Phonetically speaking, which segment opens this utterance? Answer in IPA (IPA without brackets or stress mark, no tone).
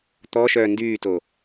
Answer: t̪